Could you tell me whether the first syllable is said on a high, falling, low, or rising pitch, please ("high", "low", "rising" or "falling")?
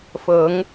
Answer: rising